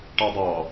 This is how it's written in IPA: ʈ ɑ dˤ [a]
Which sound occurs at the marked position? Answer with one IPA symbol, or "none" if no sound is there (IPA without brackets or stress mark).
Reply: ɑ